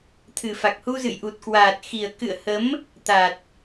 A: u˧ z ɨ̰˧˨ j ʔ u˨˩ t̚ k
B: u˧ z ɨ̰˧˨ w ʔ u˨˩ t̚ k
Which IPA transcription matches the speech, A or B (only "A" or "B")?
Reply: A